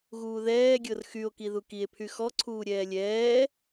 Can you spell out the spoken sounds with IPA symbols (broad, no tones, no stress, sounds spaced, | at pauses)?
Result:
ɣ uː ð ɛː ɡʲ ɤ r x y o̯ k i ð u k i e̯ pʰ y x ɔ ǀʰ uː ɾʲ ɛː lʲ ɛː